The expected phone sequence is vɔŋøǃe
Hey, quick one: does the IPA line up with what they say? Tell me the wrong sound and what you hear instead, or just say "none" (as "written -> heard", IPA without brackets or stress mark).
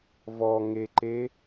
ø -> e